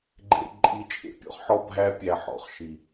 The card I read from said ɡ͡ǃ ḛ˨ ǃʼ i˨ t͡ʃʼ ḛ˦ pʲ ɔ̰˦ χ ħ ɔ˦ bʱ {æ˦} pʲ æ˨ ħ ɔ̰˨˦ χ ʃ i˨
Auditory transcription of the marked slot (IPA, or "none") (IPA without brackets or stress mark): æ˦